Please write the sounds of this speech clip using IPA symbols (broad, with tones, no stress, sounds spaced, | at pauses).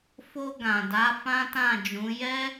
f o˧ ɡ ã˨ d a˨˦ f ã˦ t ã˦˨ d͡ʒ ũ˨˦ j ɛ˦